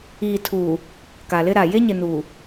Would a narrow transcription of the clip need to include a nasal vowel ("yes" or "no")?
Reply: no